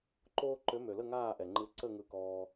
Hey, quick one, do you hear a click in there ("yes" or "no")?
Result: yes